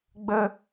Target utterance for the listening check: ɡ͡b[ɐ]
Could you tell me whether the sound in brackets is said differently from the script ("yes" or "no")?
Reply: yes